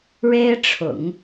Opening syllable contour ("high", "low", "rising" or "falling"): high